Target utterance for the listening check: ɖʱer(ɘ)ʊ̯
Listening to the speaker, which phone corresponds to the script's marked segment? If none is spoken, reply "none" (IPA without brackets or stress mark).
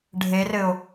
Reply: ɘ